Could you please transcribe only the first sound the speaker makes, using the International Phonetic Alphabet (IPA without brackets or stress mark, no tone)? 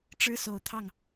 ʈ͡ʂ